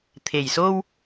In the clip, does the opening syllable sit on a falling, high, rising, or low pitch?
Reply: low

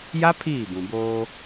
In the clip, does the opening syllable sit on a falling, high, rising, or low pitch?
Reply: high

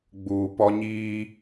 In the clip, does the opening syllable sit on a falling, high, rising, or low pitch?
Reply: low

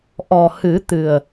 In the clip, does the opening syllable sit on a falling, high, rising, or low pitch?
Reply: low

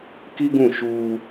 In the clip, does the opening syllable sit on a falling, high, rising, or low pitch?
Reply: high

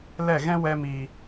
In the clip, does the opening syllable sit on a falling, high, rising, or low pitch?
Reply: falling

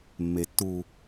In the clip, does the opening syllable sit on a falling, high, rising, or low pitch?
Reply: low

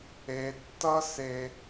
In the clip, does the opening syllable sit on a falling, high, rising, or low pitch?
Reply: high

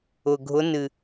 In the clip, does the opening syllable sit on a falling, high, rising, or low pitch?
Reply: low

